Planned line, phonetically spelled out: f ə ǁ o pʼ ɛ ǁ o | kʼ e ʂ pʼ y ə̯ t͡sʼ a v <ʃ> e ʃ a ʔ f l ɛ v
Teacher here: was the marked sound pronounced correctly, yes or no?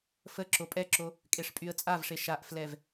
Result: no